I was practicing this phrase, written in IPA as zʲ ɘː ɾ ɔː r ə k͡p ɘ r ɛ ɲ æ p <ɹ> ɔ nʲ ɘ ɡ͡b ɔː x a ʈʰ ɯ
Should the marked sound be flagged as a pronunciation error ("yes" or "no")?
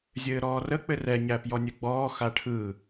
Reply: yes